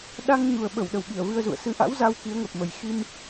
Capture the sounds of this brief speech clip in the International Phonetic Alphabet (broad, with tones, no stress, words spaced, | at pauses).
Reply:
ɗa˧ŋ ɲu˨˩ə̯ɓə˧˩w ɗə˨˩wɓi˧˩ə̯vɨ˧ə̯zṵ˧˨ə̯ sɨ˨˦ʔa̰˧˥w za˧w ki˨˦ə̯ŋə˨˩p̚ mə˨˩jxi˧m